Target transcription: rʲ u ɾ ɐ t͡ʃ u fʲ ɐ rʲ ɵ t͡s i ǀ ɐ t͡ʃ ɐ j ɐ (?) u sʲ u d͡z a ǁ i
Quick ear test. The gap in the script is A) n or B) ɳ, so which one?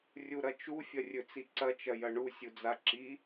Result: B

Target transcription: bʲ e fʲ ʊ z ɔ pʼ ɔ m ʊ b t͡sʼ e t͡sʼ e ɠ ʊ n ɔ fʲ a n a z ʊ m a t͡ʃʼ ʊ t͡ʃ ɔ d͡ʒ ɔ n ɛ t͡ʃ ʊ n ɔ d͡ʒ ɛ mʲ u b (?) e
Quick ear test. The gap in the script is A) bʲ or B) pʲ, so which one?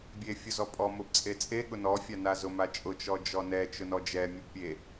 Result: B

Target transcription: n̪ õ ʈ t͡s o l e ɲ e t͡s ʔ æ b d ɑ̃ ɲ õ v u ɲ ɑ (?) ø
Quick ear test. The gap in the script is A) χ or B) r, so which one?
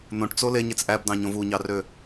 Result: B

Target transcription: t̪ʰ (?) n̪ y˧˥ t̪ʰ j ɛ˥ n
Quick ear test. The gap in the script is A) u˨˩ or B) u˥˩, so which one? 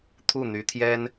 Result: B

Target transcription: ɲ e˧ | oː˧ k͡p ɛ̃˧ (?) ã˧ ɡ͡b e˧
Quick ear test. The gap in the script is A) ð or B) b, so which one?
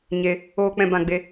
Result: B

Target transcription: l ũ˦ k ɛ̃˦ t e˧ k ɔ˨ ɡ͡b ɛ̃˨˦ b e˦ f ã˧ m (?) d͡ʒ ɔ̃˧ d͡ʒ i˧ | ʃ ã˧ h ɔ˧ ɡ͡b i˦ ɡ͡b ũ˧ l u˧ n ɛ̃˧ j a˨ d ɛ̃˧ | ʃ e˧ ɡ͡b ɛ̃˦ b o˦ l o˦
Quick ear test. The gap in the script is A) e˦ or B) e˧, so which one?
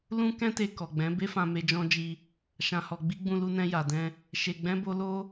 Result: B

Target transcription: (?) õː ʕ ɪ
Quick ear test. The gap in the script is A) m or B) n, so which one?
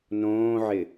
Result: B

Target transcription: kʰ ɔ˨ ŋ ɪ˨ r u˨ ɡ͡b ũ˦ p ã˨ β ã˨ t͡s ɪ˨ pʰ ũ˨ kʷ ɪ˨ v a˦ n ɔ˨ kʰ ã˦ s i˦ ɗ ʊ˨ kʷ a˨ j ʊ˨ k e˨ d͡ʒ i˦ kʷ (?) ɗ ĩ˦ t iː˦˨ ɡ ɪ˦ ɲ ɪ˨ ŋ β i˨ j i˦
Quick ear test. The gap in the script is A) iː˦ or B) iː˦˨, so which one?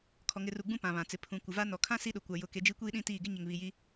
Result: A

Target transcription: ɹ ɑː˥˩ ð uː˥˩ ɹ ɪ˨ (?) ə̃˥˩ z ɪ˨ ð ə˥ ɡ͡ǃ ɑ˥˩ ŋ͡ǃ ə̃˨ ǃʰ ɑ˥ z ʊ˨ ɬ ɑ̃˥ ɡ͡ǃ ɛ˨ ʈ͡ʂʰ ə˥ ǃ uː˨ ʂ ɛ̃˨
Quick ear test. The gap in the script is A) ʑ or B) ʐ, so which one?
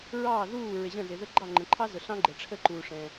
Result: A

